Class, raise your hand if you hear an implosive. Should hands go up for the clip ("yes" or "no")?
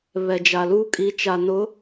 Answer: no